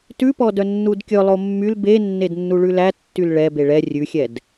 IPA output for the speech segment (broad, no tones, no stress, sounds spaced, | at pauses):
t ʉ p ɔ d œ nː u d kʲ ɵ lˠ o mː y l b e nː e d nː u ɭ ʉ l æ tː y l ɭ ɛ b e ɭ ɛ rʲ ʉ xʲ ɛ d